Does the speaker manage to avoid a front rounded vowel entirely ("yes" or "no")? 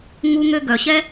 no